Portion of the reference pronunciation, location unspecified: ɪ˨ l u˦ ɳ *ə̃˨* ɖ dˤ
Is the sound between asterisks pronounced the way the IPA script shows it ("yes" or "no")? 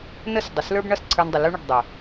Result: no